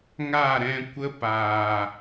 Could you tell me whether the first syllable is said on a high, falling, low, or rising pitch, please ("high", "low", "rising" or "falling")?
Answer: falling